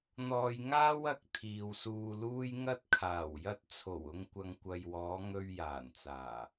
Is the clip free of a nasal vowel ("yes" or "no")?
yes